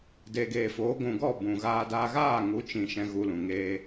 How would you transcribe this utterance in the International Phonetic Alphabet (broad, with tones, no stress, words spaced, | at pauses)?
deː˨ɡeː˨foː˨˦ ɡʷũ˨ɡɔ˦˨ bũ˨ɣaː˧daː˧ ɣaː˦˨ŋu˨˦t͡ʃĩ˨ ʃɛ̃˧ɣu˧lũ˨ ŋeː˧